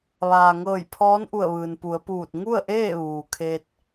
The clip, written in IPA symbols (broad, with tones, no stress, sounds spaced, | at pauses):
ʋ aː˩ ŋ ɤː˧˩ j pʰ ɔː˧˥ n ʔ u˧˩ ə̯ ʋ ɯː˩ n p u˩˧ ə̯ p uː˧˩ t̚ ŋ u˥˨ ə̯ ʔ eː˥˨ ʋ uː˩ kʰ e˧ t̚